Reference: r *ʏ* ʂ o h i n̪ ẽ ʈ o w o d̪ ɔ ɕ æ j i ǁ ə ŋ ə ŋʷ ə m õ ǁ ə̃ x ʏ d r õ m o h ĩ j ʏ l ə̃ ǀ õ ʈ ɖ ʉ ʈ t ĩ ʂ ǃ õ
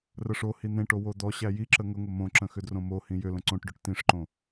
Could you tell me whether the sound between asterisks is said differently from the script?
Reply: yes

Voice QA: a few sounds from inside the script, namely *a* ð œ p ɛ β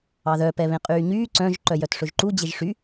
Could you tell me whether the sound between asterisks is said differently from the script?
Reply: yes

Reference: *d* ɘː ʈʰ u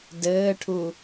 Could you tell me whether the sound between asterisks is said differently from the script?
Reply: no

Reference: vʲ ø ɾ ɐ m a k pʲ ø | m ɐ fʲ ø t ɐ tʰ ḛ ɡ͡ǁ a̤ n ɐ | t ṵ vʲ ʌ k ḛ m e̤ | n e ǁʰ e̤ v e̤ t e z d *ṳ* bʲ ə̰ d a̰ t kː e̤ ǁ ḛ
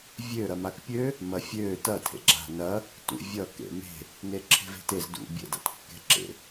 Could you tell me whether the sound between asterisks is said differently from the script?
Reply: yes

